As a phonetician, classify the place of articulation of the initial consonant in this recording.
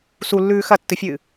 alveolar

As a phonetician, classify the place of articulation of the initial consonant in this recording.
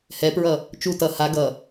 glottal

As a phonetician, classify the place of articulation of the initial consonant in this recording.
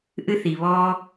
glottal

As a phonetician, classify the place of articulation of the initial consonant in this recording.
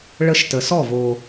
retroflex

